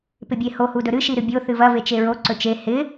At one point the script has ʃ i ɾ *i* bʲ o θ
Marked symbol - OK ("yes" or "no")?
no